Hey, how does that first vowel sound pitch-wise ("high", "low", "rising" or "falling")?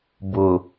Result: low